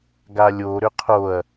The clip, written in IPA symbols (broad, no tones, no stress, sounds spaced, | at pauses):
ɡ a lʲ o ɾ ʏ qʰ o ɐ̯